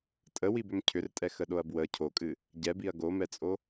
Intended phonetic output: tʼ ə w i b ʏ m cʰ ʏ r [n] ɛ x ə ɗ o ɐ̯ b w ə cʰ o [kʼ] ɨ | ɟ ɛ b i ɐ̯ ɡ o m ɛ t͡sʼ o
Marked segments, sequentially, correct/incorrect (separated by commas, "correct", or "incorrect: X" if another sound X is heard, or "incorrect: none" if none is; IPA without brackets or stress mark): incorrect: tʼ, correct